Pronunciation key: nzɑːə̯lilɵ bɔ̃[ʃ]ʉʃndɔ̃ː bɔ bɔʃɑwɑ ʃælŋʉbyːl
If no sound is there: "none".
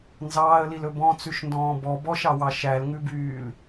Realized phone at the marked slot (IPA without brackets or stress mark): t͡s